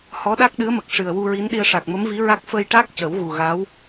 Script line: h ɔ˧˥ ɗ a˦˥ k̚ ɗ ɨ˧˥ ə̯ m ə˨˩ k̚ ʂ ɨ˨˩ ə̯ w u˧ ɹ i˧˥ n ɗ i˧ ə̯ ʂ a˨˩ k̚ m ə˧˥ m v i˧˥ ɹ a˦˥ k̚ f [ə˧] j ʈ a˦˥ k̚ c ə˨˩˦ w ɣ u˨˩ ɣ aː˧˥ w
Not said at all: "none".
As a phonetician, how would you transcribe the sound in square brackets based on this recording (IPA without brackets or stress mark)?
ə˧